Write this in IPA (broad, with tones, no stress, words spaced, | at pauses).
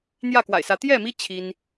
n̪jä˥˨kwa̰˨˩ɪ̯sä˨˦ t̪jɛ˥˨mi˦ t͡ɕʰi˦n